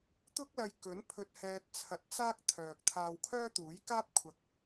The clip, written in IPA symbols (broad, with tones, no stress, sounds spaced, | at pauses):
t̪ ʊ˥ k̚ l ɐ˧ j k ɵ˨˥ n pʰ ɵ˧ t̚ h ɛː˧ t̚ t͡sʰ ɐ˧ t̚ t͡s aː˥ k̚ t̪ʰ œː˨ k̚ t̪ʰ aː˧ w kʰ œː˥ t̪ uː˨˥ j k aː˥ p̚ kʷʰ ɐ˨˥ k̚